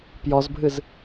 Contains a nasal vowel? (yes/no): no